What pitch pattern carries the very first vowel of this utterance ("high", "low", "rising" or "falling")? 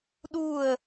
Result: falling